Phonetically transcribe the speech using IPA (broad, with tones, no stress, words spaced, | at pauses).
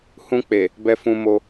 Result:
hũ˧k͡pe˨ | bɛ˧fũ˧mo˧